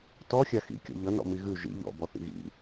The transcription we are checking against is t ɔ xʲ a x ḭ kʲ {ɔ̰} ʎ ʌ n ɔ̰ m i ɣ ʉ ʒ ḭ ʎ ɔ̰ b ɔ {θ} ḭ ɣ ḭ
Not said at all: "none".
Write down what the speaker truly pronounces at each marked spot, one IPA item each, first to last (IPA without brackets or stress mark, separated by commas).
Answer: ɔ̰, θ